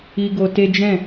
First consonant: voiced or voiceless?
voiced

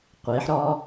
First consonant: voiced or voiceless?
voiceless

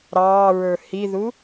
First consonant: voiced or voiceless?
voiced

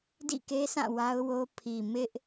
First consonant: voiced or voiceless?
voiced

